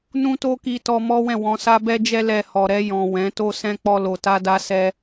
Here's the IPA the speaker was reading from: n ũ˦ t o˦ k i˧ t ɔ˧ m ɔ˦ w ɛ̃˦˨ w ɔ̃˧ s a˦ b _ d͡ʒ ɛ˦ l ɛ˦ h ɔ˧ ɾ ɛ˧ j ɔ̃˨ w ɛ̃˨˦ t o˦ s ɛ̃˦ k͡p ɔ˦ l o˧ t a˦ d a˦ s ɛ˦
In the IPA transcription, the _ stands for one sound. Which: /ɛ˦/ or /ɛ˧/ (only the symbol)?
ɛ˦